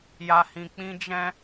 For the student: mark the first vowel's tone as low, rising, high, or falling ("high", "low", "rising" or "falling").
low